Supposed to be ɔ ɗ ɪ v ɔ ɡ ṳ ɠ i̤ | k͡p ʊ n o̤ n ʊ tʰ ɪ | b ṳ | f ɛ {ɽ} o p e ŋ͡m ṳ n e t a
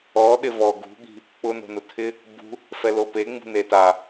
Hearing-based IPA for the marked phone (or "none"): l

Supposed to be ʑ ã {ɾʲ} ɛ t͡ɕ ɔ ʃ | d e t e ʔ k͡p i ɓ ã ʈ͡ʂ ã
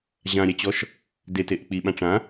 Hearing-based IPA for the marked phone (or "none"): ɾʲ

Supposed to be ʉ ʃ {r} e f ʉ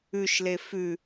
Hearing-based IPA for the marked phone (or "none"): l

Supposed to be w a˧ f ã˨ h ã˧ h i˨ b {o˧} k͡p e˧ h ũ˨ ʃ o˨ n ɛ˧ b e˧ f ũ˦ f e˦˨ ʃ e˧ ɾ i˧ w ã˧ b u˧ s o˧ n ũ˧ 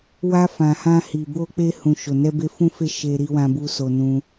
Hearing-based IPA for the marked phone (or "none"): o˧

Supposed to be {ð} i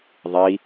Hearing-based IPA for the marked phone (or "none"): ðˤ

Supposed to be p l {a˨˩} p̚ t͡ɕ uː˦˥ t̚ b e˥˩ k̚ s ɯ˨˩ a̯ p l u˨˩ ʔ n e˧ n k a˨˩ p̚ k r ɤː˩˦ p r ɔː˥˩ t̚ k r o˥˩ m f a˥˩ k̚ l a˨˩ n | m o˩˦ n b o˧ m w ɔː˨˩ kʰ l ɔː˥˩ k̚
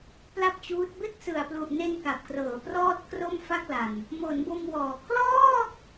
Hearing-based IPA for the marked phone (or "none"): a˥˩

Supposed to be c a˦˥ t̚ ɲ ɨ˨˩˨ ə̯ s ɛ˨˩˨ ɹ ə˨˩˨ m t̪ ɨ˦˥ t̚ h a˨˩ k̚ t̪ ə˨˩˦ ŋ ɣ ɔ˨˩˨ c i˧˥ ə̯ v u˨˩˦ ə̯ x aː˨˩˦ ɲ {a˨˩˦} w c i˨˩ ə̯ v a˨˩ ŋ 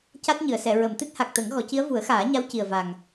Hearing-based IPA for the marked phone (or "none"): a˧˥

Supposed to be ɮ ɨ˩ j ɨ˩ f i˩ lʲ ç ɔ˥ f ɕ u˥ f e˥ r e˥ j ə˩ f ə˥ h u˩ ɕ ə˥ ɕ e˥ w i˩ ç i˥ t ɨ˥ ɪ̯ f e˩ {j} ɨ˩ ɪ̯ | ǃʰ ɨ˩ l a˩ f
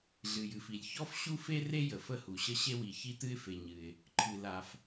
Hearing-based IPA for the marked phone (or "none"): ɲ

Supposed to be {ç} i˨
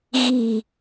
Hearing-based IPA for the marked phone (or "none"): ɣ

